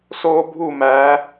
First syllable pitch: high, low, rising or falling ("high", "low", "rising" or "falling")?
high